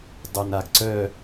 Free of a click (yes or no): no